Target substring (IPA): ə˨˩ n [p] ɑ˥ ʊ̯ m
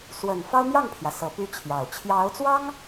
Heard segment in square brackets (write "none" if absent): f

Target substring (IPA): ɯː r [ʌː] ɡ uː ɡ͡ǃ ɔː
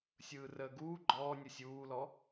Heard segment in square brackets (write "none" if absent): əː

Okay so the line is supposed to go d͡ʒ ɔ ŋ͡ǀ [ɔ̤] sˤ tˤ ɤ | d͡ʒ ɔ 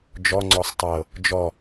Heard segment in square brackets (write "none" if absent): ɔ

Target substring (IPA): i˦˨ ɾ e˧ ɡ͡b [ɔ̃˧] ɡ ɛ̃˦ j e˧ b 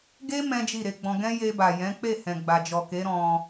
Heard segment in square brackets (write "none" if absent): ɔ̃˧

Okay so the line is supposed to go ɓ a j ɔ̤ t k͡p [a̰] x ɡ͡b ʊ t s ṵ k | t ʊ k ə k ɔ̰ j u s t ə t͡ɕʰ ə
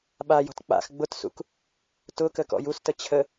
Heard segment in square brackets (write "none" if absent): a̰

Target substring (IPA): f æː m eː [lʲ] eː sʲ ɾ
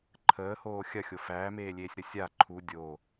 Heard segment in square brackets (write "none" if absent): lʲ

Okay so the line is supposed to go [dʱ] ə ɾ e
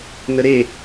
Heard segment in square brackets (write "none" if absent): n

